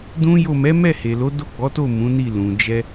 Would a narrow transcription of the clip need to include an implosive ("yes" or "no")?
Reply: no